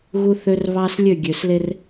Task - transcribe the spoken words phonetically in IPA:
ɣ u˦ θ ø˦ r β ɑ˦ s lʲ ø˦˨ ɡʲ ø˨ s l e˦ r

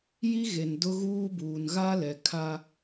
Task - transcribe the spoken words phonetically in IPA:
j i˦ ɣ e˨ n d ʊ˦ ɣ uː˦ b uː˨ n ɣ a˦ l ɛ˨ kʰ a˦

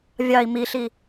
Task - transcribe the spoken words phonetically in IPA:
vʲ ɑ i̯ m i ɬ i

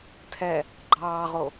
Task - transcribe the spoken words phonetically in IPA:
tʰ ɛ | ɡ͡ǃ ɑː ʁ o

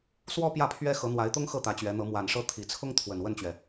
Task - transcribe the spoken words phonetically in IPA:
s w ɔ˥ p j ä˥˩ pʰ ɥ ɛ˥ x ɤ˧˥ n̪ w a˧˥ ɪ̯ t̪ ʊ˥ ŋ x ɤ˥˩ t̪ ä˧˥ t͡ɕ ɥ ɛ˧˥ n̪ ɤ˧˥ m w a˨˩ n ʂ ɤ˥˩ t̪ʰ i˨˩ t͡sʰ ʊ˥ ŋ t̪ʰ w ə˨˩ n w ə˥˩ n t͡ɕ ɥ ɛ˩

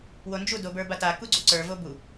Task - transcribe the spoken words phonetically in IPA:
w o n d͡ʒ u d o b ə˞ b a t a k u ɡ͡ǀ u ǀ ə˞ v o b u

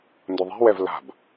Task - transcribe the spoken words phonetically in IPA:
n d ʊ ðˤ e̤ w ɛ v l a̤ b

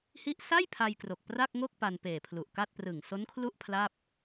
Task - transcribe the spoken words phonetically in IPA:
h i˥˩ ʔ s a˥˩ j pʰ a˧ j k r o˨˩ k̚ p r a˥˩ k̚ ŋ o˥˩ k̚ p a˧ n p eː˨˩ pʰ l u˨˩ ʔ k a˥˩ t̚ p r ɯ˨˩ ŋ s o˦˥ n kʰ l u˥˩ ʔ pʰ l a˥˩ p̚

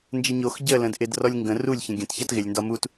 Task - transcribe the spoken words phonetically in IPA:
n d͡ʒ ə ɲ o x ɟ ə l ə̃ d ʔ ɪ d r ɔ lʲ ŋ ɡ ə̃ r u lʲ ç ə̃ ɡʲ ə̃ t ç a t ɣ ɪ lʲ n d ɒ m u t

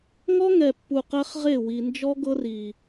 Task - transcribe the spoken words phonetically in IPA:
ŋ ɔ˦ ŋ ɛ˨ pː u˨ q ɛ˦ χ ʁ e˦˨ w i˨ n d͡ʒ ɔ˦ ɡ ɤ˦ r i˨

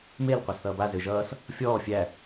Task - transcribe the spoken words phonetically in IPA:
m e l qʷ æ s θ ʌː b a z ø ʒ ʌː s | fʲ ɔː fʲ æ

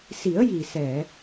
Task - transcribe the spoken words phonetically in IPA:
s i˨˩˦ ə̯ j i˨˩ s ɛ˨˩˨

